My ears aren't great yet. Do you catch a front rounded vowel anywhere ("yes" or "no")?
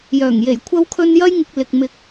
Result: yes